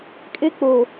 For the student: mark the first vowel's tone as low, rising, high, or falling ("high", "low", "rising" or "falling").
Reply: high